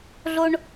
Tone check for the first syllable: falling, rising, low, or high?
high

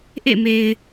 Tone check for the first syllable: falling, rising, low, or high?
falling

